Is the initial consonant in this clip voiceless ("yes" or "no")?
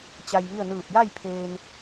yes